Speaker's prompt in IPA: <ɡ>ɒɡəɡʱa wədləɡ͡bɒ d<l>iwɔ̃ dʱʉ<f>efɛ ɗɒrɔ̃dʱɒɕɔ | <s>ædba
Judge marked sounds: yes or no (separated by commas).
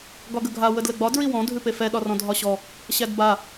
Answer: yes, no, no, no